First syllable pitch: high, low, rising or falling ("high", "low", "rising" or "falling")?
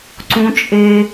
high